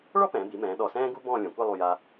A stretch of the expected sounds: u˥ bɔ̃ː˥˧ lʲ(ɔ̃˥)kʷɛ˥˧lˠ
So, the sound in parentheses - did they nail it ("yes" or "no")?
no